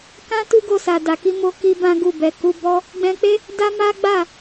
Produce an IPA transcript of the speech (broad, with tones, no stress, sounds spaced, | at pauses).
k ã˦ t u˦ ɡ o˧ s a˨ d a˨ k i˧ m o˧ k i˧ b ã˦ ɡ u˦˨ b ɛ˨ k u˧ b ɔ˦ | ɡ͡b ɛ̃˧ k͡p e˦ | d a˦ m a˦ ɡ͡b a˦˨